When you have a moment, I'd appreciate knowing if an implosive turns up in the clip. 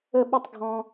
yes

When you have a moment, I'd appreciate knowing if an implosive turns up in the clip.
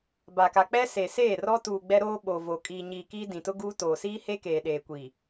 yes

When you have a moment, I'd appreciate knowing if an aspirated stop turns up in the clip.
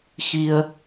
no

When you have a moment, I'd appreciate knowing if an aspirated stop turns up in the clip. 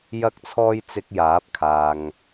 yes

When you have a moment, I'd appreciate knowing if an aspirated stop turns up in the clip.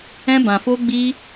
no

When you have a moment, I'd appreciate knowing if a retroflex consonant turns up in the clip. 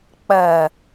no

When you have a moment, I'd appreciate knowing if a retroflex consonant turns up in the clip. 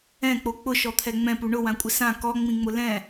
yes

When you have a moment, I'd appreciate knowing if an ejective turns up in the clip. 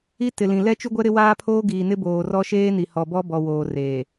no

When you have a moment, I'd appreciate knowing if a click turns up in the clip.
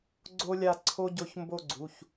yes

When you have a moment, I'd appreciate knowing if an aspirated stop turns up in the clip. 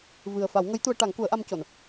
no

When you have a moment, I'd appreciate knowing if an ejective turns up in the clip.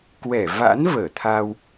no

